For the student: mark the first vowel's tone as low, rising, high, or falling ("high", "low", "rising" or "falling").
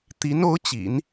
rising